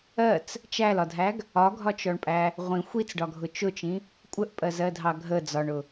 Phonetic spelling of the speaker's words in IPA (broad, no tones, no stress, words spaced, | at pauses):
ɜt͡s | t͡ʃælɒdʱæɡ | ɒɡʱɒt͡ʃɔɳpʼæ | ʁʷĩ xʷit͡sɖɒɡʱʊ t͡ʃʊt͡ʃĩ | kʷʼəʔpʼɜzɜdʱɑ ɡʱə d͡zɒɳʊ